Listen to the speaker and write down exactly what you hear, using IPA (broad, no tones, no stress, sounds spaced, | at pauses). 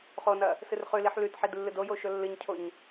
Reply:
χ o n ɐ | s ɨ r χ ʉ l i ħ l ʉ t ħ i d lː ɨ d o j o ʃ ɵ lː ɨ ɲ cʰ o ɲ